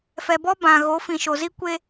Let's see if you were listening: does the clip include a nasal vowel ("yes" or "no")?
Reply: yes